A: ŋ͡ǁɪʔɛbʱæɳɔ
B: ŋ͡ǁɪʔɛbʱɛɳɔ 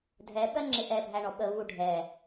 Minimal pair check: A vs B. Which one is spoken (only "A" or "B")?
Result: A